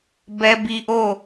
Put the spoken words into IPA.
b ɛ˦ b i˦ ʔ o˦˨

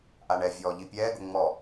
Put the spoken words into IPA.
ʔ a ɳ ɛ vʲ ɔː ʎ i pʲ ɛː ɡ ʊ ŋ͡m ɔ

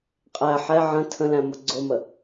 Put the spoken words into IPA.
qʼ æ ħ ɛ ʕ ə̃ tʰ ə̃ l æ̃ m ʊ ɡ͡ǀ ʊ m ə

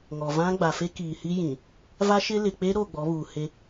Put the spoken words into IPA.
ŋ ɔ˨ v ã˦ ɡ͡b a˨ f e˦ k iː˨ h i˦ j ĩ˨ | v a˦ ʃ ɪ˦ l ɪ˨ k͡p e˦ ɾ o˦˨ ɡ͡b ɔ˨˦ β uː˨ h e˦

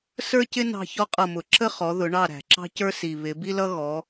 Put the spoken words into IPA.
s ə˞˥ c ɪ˥ n ɑ̤˦˨ ç ɔ˥ qʼ ʌ˦˨ m ʊ˧˩˧ ǁ ə˥ χ ɔ˨˦ ð ʊ˨˦ ɳ ɑ˦˨ ɾ æ̤˨˩ ǁ ɑ̤˥ c ə˞˥ s i˨˩ β ɪ˨˦ b i˥ l ʌ˥ ɣ ɔ˨˦

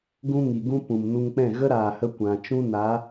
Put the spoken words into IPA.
ɡ ũ˦ ŋ i˨ ɡ ũ˦ p ũ˨ m n u˧ ŋ k͡p ɛ̃˦˨ ɣ ə˦ ɾ aː˨ h ə˧ kʷ ã˨ t͡ʃ ũ˦ n a˨˦

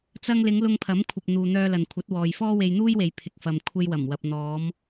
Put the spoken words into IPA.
t͡s ɐ˧ ŋ l ɪ˨˧ ŋ l ʊ˧ ŋ pʰ ɐ˨˥ m kʷʰ ɐ˨ p̚ n̪ uː˨ n̪ œː˧ l ɐ˨ n kʷʰ ɐ˨˥ t̚ w ɔː˨ j f ɔː˥ w e˧ j n̪ uː˥ j w e˨ j pʰ ɪ˨ k̚ f ɐ˨ m kʷʰ e˧ j w ɐ˨˩ m w ɐ˨ p̚ n̪ ɔː˨˧ m

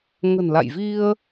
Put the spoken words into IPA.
ŋ ə̤˨˩ n l a̰˧˨ j v i˧ ə̯

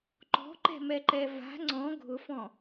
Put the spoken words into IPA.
ǃ ɔ̤ ǃ ɛ̤ m ɛ ǃ ɛ v a̤ ŋ͡ǀ ɔ̃ ɡʱ ʊ f ɔ̃

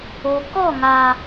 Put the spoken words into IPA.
o˨ k ɔ˦˨ ŋ a˨

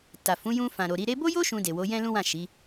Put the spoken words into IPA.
t a˨ f ũ˨˦ j ũ˧ f ã˨ ɾ o˨ ɾ i˨˦ ɾ e˧ b o˦ j o˦ ʃ ũ˧ d e˨ w o˨˦ j ɛ̃˦ l ũ˦ w ã˦˨ ʃ i˨˦

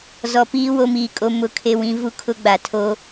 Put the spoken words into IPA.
z ɔ˨ p iː˦ w o˦ m iː˨ kʼ o˦ m ʊ˦ kʰ e˦ w ĩ˦ v u˦ kʰ ʊ˦ ɡ͡b a˨ tʰ o˦

